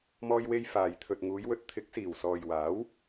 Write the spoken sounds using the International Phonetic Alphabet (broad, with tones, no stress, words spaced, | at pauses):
mɔː˧jwe˧j faː˨j t̪ʰɵ˨t̚ŋuː˨˧jwɵ˨˥t̚ t̪ʰɪ˨˥k̚siː˨˩wsɔː˨j waː˨˥w